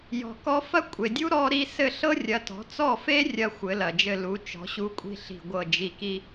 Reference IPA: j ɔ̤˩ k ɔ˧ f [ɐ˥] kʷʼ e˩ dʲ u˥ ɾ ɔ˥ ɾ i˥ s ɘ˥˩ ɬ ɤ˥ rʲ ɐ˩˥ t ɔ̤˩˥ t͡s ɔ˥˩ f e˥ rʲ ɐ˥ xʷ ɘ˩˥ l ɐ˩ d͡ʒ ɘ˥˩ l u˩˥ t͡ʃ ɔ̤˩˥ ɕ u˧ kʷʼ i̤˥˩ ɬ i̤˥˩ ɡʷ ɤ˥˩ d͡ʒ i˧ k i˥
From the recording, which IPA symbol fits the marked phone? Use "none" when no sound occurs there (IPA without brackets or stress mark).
ɐ˥